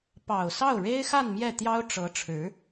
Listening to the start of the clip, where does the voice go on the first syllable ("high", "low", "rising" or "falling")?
low